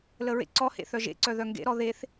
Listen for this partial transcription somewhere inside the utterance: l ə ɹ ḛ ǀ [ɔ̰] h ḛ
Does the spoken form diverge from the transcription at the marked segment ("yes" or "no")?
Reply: yes